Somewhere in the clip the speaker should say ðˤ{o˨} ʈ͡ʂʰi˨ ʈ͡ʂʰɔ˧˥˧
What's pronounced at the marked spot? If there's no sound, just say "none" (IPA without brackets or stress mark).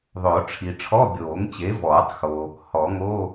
o˨˩˦